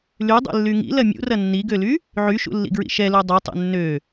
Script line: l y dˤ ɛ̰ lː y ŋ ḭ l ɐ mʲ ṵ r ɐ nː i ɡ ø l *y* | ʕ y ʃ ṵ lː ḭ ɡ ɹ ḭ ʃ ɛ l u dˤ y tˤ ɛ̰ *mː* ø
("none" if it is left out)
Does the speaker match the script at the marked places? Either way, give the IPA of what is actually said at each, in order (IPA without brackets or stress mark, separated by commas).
y, nː